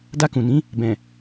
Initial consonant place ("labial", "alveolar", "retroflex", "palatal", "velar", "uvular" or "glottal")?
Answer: alveolar